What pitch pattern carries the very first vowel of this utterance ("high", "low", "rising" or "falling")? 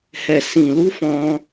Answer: low